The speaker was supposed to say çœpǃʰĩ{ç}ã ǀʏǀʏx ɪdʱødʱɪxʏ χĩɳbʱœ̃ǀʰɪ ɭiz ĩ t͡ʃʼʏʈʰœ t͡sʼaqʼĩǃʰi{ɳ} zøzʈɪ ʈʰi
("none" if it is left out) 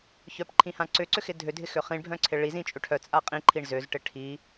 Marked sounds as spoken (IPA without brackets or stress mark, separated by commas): h, ɳ